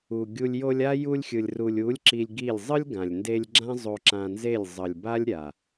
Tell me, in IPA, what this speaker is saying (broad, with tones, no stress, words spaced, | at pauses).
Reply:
u˨ɡʲu˧lʲ jo˧lʲa˦ ju˧lʲxʲɯ˨lʲ ru˨lʲu˨˦lʲ ǁi˧lʲɡi˦˨lʲ zˤɯ˦lʲɡã˨lʲnde˧lʲ ɡ͡ǁã˦zˤo˧ǁã˧nze˦˨lʲ zˤʌ˨lʲ ba˦lʲɾʲa˨